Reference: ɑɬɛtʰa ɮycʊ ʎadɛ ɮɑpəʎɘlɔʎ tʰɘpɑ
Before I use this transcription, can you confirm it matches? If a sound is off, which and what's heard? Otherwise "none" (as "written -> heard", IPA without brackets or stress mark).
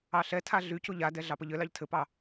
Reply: ɔ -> ɑ